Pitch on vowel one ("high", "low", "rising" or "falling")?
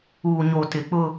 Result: low